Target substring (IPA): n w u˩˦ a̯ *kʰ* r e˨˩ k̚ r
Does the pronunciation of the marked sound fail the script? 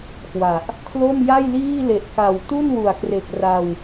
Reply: yes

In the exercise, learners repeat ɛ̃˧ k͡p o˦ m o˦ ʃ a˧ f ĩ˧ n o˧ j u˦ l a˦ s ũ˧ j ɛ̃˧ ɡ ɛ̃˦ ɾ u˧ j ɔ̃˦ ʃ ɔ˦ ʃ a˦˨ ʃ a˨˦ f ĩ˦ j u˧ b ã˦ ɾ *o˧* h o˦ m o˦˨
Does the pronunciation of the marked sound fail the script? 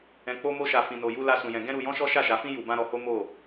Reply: yes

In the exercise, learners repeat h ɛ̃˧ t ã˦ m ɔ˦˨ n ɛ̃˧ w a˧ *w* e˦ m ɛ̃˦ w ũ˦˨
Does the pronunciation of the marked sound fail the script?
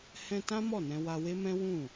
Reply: no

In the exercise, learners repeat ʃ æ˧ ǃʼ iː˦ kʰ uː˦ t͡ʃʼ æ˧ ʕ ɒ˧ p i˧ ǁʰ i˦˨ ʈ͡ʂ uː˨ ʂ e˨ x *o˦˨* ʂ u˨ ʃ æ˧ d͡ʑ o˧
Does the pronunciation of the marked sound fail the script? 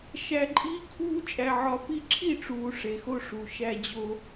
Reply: yes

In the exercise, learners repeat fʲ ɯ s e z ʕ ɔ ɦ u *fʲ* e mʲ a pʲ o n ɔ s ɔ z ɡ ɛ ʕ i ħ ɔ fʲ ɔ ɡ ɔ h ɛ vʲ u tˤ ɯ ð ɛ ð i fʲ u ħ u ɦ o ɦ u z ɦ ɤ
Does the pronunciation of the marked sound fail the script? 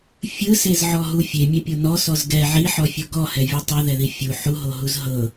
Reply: no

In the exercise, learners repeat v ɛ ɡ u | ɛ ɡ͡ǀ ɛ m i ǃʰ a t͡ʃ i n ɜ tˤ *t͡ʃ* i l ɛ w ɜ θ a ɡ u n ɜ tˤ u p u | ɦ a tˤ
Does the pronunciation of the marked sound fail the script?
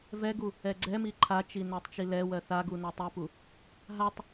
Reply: no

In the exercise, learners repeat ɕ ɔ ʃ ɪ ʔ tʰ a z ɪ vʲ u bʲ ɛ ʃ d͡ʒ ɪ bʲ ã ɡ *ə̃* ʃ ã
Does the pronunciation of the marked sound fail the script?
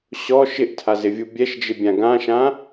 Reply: yes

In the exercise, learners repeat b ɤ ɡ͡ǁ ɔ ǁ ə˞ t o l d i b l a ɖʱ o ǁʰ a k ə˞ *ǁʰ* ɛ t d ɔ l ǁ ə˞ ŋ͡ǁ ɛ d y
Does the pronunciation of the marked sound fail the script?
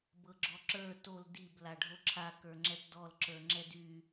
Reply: yes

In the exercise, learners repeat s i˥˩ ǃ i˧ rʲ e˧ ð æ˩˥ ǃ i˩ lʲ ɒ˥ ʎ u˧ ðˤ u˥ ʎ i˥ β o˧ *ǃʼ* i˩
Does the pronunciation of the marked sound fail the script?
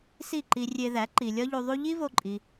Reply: no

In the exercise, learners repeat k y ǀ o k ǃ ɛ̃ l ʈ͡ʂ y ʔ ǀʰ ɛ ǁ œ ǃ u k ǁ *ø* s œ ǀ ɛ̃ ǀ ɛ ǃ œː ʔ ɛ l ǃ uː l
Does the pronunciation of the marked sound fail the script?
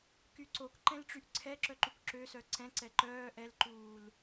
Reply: no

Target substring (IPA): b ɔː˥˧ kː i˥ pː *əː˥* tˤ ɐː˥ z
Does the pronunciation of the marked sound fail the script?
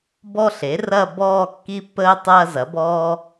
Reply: no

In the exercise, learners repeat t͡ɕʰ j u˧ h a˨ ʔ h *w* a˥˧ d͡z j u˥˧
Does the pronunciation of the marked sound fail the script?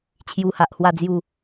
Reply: no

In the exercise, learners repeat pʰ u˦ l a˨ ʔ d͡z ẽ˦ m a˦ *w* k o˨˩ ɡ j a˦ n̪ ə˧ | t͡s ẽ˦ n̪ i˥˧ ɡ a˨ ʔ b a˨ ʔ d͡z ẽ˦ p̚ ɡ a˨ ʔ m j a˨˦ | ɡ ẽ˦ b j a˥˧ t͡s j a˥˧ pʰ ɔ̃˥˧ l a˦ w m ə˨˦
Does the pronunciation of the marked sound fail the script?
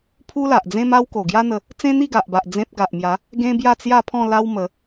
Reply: no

